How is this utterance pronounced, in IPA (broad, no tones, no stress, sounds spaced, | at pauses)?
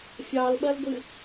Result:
fʲ ɑ l ɓ ɐ l ɡʷ ɨ